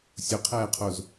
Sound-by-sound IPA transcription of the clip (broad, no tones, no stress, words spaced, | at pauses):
sʲʊqʰɛːqʰoz